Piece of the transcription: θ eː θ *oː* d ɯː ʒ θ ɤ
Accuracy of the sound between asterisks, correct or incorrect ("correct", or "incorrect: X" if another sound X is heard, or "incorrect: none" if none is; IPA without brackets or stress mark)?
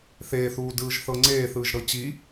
incorrect: uː